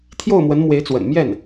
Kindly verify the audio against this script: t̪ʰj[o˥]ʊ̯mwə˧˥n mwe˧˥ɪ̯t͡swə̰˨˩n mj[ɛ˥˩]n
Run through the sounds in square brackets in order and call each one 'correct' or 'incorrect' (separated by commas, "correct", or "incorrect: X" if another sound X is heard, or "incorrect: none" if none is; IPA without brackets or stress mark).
incorrect: o˥˩, correct